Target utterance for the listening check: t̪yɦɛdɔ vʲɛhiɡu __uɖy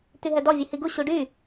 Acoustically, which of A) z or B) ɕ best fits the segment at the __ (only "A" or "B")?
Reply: B